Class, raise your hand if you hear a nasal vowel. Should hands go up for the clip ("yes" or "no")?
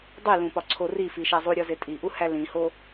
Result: yes